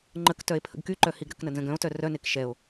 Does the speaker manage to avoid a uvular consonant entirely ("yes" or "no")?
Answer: yes